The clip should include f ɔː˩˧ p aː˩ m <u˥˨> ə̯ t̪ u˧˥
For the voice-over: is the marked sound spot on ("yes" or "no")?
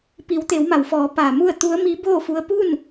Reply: yes